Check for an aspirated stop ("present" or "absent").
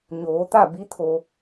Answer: present